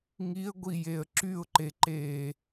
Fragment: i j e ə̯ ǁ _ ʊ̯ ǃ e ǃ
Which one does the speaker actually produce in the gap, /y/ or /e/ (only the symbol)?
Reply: y